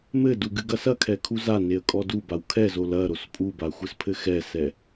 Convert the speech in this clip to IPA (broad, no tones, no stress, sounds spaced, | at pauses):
m ɘ d u ɡ ɨ ɡ ɐ s ɐ kʰ ɛ kʰ u z a n e ə̯ kʼ ɔ d u b a w kʰ ɛ z o l ɐ ɾ o s pʼ u b a xʷ ɘ s pʰ ɘ x ɛ s ɛ